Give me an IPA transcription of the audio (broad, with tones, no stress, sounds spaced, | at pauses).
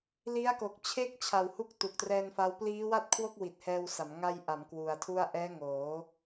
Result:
l i˦˥ a̯ k o˨˩ k̚ t͡ɕʰ e˥˩ k̚ t͡ɕʰ a˨˩ w h u˦˥ k̚ t u˨˩ k̚ t r ɛː˧ n f a˦˥ w p l iː˦˥ w a˥˩ t̚ kʰ w o˥˩ k̚ w i˨˩ t̚ h ɛː˧ w s a˩˦ m ŋ a˧ j ʔ a˩˦ m k w u˨˩ a̯ tʰ u˥˩ a̯ ʔ ɛː˦˥ ŋ oː˩˦